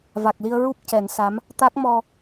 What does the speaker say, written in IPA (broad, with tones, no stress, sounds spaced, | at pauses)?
v a˨˩ k̚ l i˧ ə̯ ɹ u˦˥ p̚ c ɛ˨˩˦ n s a˧˥ m | t̪ a˦˥ k̚ m ɔ˧